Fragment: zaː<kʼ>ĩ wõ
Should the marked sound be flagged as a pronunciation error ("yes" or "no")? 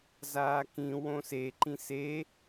yes